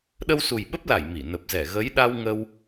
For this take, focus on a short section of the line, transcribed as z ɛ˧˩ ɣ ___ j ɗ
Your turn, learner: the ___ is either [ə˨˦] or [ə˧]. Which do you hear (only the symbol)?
ə˨˦